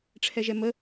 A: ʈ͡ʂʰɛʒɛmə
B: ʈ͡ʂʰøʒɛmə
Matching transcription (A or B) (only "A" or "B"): A